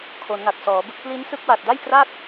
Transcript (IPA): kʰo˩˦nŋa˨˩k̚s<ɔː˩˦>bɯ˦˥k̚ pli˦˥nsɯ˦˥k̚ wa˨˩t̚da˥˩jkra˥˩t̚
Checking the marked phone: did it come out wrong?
no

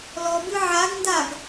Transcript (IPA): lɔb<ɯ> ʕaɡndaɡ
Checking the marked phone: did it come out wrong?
no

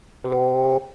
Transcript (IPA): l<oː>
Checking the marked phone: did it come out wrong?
no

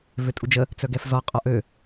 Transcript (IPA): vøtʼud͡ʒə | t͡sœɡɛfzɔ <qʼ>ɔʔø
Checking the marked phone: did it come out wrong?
no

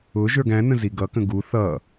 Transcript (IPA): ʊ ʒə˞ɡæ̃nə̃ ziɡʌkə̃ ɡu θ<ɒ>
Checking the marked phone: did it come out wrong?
yes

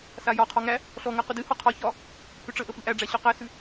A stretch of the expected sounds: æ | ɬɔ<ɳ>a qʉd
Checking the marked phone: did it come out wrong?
yes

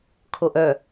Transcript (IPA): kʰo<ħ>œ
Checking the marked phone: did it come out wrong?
yes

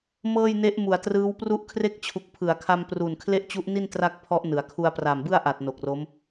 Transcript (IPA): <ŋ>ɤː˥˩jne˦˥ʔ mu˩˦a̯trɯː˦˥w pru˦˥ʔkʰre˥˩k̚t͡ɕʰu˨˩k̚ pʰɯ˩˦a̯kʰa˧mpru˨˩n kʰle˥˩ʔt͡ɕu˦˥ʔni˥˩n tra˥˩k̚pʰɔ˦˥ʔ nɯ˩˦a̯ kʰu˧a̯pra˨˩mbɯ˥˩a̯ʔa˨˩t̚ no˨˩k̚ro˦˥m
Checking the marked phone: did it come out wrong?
yes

